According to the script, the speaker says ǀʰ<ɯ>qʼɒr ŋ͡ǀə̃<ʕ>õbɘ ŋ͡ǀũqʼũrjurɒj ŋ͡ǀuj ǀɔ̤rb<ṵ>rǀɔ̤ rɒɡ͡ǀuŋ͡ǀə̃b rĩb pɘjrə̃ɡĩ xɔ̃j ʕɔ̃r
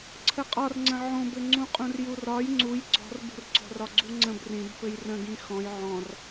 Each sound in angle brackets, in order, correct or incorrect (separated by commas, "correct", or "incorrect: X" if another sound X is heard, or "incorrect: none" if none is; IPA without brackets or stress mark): incorrect: ə, correct, incorrect: ṳ